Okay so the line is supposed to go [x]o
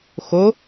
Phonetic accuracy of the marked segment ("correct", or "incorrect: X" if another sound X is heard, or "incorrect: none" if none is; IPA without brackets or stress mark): correct